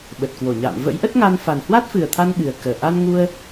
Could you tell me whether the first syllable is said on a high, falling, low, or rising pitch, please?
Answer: low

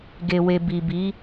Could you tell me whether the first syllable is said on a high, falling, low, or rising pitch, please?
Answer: low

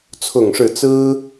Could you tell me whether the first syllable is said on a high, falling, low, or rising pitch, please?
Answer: falling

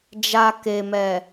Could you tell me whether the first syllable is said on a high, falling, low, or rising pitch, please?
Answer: low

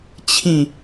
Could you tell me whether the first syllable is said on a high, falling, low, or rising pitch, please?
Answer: falling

